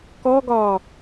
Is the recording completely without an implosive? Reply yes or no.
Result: yes